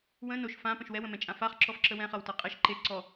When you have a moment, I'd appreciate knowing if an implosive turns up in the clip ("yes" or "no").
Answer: no